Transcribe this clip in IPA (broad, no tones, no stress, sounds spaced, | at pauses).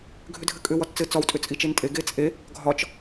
ɡʱ ʏ dʱ ɘ kʼ ʏ w ɒ t t͡s ɘ t͡s ɒ w tʼ ʏ t͡sʼ i t͡ʃ e n tʼ e ɡ e t͡sʼ e | ɡʱ ɒ t͡ʃ